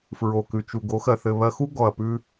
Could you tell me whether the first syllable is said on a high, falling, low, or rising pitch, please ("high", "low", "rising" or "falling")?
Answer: low